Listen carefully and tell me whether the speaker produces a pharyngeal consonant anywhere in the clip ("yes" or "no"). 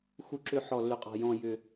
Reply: yes